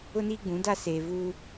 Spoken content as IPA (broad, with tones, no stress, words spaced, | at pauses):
ʊ˦niː˦ɡ͡bũ˨˦ da˦ seː˨vuː˦